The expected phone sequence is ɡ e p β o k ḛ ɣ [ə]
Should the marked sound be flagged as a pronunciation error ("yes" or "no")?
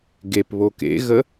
no